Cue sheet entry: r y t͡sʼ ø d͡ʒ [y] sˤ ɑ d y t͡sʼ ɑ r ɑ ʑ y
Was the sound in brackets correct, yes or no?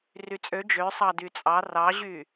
no